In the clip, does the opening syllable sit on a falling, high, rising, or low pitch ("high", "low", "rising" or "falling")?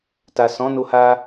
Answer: low